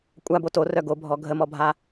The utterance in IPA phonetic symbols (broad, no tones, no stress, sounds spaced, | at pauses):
kʷʼ a b o t o r œ ɡ o bʱ ɔ ɡʱ ə m ɔ bʱ a